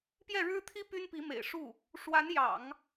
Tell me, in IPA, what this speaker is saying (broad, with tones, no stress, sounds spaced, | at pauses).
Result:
p j ɛ˥˩ ɻ ɻ̩˥ t̪ʰ i˥ p y˥ n p i˧˥ m ḛ˨˩ ɪ̯ ʂ u˥˩ | ʂ w a˧˥ n j ɑ̰˨˩˦ ŋ